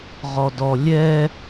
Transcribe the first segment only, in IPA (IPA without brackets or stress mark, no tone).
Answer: ʁ